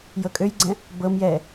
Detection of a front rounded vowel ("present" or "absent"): present